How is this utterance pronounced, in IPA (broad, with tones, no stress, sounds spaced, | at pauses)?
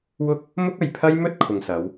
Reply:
w ʊ˥ k̚ | m ʊ˥ k̚ ɐ˨ j pʰ ɐ˥ j m ɵ˥ t̚ kʰ ʊ˨ ŋ s ɐ˨˧ w